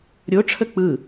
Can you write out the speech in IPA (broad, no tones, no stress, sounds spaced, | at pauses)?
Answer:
ɾʲ o ʈ͡ʂʰ ə k͡p ɯ